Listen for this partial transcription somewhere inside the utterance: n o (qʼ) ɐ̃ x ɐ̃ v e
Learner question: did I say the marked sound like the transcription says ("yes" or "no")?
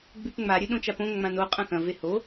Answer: yes